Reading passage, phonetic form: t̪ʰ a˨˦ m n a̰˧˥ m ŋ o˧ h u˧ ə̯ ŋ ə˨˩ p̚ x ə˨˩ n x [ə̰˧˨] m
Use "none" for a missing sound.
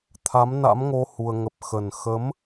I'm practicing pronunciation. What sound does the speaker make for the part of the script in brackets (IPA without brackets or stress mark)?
ə˨˦